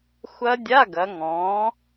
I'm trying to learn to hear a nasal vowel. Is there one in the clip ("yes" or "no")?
yes